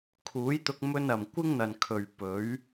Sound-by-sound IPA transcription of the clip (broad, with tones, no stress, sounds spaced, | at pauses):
kʰ uː˨˥ j t̪ ʊ˧ k̚ m ɵ˥ n ɐ˨ m kʷ ɪ˥ ŋ n̪ ɐ˨ n kʰ ɵ˨ ɥ p ɵ˨˥ ɥ